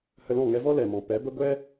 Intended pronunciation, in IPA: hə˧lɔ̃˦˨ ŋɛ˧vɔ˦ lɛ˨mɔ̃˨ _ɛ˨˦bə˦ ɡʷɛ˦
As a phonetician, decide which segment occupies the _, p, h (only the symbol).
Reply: p